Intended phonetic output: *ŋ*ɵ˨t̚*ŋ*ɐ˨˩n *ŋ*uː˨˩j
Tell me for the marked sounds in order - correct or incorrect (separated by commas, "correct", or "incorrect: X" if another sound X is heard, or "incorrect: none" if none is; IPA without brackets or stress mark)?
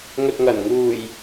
correct, correct, correct